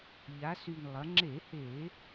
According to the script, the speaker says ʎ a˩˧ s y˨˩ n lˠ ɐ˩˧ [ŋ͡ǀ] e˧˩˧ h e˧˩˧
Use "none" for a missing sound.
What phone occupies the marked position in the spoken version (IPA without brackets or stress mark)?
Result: ŋ͡ǁ